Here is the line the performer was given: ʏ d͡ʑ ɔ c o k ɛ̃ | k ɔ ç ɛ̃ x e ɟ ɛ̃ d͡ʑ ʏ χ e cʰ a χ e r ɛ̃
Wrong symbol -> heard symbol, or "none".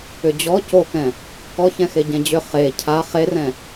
none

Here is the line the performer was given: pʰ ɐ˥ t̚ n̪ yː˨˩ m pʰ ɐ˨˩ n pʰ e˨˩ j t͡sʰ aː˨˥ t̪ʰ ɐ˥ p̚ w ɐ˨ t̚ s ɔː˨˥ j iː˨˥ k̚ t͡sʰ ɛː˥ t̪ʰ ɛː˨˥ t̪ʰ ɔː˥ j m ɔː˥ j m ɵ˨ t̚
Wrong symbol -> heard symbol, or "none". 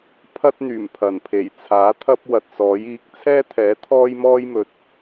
none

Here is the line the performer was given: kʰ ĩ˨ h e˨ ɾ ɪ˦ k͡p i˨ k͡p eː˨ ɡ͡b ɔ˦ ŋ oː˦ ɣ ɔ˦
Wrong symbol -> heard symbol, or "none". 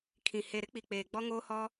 ɣ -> h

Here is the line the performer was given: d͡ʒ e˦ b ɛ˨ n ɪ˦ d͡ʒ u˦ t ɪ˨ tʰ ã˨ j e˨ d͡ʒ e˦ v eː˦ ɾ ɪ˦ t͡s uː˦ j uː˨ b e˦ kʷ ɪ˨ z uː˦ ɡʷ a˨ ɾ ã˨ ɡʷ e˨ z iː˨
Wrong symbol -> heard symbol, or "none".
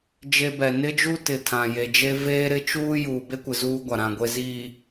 t͡s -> t͡ʃ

